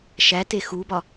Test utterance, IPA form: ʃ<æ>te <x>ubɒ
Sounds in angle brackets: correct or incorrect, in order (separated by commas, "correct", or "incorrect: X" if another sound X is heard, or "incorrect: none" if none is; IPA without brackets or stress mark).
correct, correct